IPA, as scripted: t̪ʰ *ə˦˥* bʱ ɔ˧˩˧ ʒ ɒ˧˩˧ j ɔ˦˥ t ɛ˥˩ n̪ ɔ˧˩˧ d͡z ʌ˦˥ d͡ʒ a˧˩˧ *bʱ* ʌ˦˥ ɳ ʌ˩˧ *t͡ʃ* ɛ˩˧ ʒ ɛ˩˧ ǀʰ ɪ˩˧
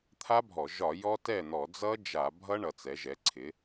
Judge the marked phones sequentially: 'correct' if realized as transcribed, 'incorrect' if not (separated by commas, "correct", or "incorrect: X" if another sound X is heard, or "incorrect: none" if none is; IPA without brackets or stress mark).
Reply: incorrect: a˦˥, correct, incorrect: t͡s